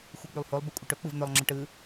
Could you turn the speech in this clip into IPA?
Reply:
xʷɯk͡pylˠholˠ bɪkʷʼəʈɵ k͡pɯvn̪ɵlˠ ŋ͡ǁəʈɯ

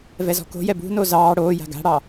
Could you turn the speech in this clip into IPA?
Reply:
vɛzɔ̤ko̤jɛ bṳno zɑː ɽoːja̤ ɡa̤ɽɑ

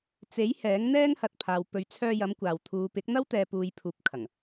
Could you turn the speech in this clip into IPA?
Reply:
t͡se˨˥j hɛː˨˥ŋn̪ɛː˥ŋhɐ˨t̚pʰaː˨w pɵ˨ɥt͡sʰœː˧jɐ˨˧m kʷaː˨w t̪ʰuː˨pɪ˨˥k̚n̪ɐ˥w t̪ɛː˨puː˨j pʰuː˧p̚kʰɐ˨˩ŋ

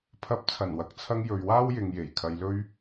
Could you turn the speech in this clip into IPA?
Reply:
pʰɐ˨˥p̚t͡sʰɐ˨˩nwɐ˨˥k̚t͡sʰɐ˧ŋ jɵ˨ɥwaː˥wjɪ˨ŋ je˨˩j kʰɐ˧jlɵ˥ɥ

